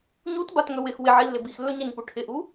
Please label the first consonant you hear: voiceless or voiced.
voiced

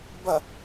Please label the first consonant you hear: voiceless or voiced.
voiced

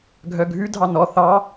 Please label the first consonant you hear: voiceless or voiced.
voiced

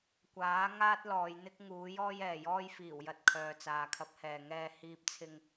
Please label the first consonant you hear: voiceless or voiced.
voiceless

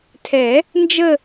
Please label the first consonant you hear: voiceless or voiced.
voiceless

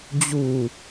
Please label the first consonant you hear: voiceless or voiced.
voiced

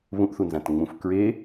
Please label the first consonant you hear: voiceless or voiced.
voiced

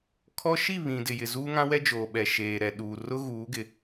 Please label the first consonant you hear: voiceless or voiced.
voiceless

